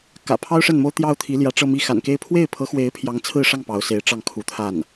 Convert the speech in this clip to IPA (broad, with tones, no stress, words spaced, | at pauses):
kä̰˨˩pʰɑ˥ʊ̯ʂə˥˩nmo˥ʊ̯ t̪jɑ˥ʊ̯t̪ʰi˧˥ljä˧˥ ʈ͡ʂɤ˥˧mi˥˩ xa̰˨˩nke˥˧ɪ̯ pʰwe˥˩ɪ̯pʰɤ˧˥xwe˧˥ɪ̯ pʰjɑ˧˥ŋt͡sʰɹ̩˥˧ʂɑ˥˩ŋ pɑ˧˥ʊ̯se˧˥ɪ̯ʈ͡ʂɑ˥˩ŋ kʰu˧˥t̪ʰa˥˩n